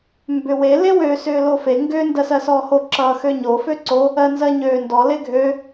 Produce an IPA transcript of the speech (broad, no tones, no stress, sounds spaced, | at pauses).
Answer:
m b ʏ w e l e w ø s ʏː l o f e ŋ ɡ ʏː n d ɜ s ɜ s ɔː h o ǁ ʌː x ø ɲ o f ø ǀ o | ɜ n z ɜ ɲ øː n d ɔ l e ɡʱ ø